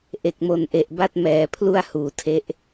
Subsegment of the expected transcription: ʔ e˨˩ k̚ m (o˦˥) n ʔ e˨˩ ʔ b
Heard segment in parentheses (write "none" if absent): o˨˩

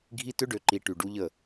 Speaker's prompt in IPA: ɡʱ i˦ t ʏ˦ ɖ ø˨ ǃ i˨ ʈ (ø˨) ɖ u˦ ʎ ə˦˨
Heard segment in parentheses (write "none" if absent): y˨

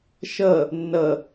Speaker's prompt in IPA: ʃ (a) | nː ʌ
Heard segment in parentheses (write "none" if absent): ʌ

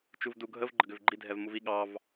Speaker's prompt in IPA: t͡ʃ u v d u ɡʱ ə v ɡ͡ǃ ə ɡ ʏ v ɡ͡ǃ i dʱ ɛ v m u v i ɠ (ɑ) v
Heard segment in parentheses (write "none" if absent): ɑ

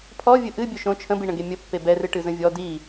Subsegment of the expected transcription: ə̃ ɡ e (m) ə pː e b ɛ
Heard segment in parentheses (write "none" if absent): mʲ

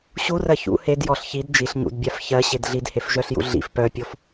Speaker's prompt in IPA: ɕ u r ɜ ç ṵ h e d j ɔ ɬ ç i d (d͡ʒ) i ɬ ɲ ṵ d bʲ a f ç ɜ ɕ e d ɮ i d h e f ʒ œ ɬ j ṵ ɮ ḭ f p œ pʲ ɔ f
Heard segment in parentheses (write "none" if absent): d͡ʒ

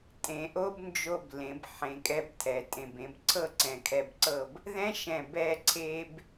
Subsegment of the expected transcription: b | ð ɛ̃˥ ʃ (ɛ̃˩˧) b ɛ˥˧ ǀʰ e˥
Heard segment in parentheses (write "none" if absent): ɛ̃˧˩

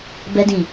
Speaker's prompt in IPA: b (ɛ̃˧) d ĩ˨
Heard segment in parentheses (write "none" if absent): ɛ˧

